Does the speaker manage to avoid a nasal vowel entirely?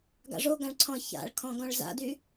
no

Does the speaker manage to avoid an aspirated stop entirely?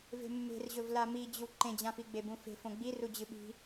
yes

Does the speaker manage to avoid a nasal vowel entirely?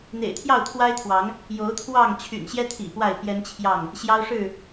yes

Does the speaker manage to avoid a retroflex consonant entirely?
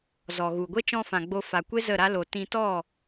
yes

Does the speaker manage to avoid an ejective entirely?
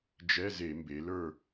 yes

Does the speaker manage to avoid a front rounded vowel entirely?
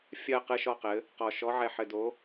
yes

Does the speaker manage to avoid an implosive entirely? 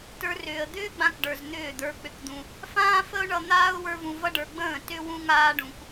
yes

